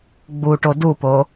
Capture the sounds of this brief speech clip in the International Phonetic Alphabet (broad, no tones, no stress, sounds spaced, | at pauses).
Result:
ɡ͡b u ʈ o d u p o